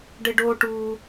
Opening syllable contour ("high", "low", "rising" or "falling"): high